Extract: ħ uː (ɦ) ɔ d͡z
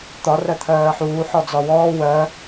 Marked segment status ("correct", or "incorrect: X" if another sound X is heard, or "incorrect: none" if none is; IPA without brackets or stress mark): incorrect: ħ